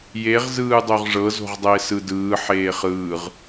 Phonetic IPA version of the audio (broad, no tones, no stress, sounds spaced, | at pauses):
j e ʁ z ɯː dˤ o ʁ ʐ ɤ z o̤ ʁ dˤ ɛ e̯ s ɯ d ɯː ħ eː χ ɯː ʁ